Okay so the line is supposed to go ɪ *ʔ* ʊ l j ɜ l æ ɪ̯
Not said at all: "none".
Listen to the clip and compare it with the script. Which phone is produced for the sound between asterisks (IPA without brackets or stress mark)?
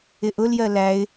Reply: ʔ